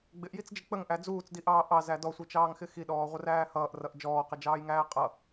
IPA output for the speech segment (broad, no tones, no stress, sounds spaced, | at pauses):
ɡ͡b ɪ ʔ j i t͡s d͡ʒ ɪ k͡p ə ŋ ʔ æ d͡z uː t͡s d i ʔ ɑː ʔ ɑ z æ d ɔ sʷ i t͡ʃ ɑː ŋ x ɪ x i ɗ ɔː ʁʷ ə r æː h ʌː ʔ r ʌ ʔ d͡ʒ ɔː q ɪ d͡ʒ ɑː j ŋ æː qʼ ʌ